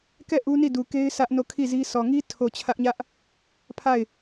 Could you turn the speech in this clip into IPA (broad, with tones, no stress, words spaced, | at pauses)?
kɛ˦˨ ʔu˦ni˦˨du˨ke˦ɪ̯ sä˦ʔno˦˨ kʰi˦˨zi˦ sɔ˨ŋi˦ tʰo˨ t͡ɕʰä˦ʔɲä˦ʔ | pʰa˦˨ɪ̯